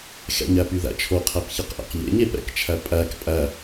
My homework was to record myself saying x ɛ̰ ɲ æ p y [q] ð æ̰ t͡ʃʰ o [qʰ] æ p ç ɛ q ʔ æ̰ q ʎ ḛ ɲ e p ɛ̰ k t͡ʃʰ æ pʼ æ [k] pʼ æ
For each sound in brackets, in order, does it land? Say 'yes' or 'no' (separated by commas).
no, yes, yes